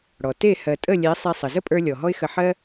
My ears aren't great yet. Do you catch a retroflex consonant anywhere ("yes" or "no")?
yes